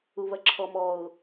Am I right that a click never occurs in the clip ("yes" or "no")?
no